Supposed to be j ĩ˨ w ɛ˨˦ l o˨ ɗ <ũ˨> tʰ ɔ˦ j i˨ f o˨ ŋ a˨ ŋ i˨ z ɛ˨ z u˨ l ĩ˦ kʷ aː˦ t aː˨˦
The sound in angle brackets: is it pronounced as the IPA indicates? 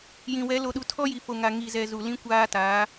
no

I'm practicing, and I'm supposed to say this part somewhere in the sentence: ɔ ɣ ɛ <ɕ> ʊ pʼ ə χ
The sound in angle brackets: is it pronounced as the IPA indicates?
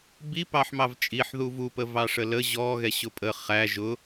yes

